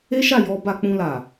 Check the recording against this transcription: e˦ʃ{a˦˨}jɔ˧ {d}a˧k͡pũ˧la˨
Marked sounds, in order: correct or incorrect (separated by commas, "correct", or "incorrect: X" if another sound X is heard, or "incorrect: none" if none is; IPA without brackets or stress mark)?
correct, incorrect: b